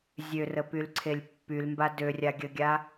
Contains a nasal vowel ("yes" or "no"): no